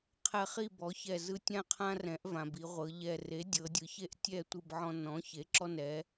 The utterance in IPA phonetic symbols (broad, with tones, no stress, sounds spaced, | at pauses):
qʰ ɛ˧˩ χ i˥˨ b ɔ˩˥ ç ɛ˧˩ z ɯ˦ tʲ ã˦ qʰ ã˦ r ɛ̃˩˥ ʔ v ã˩ b i˩˧ ʁʷ ɤ˩˧ ʎ ɛ˧˩ r e˩˥ dʲ ɤ˩˧ dʲ ɯ˩˧ ç e˦ ʔ tʲ ɛ˥˨ tʷ ɯ˥˨ b ʕ ɔ̃˦ n ɔ̃˩˥ ç e˩˥ ǁ ɔ˦ n ɛ˩˥